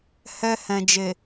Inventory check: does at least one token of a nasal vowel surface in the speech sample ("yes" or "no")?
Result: yes